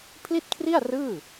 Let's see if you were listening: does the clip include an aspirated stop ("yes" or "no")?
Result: yes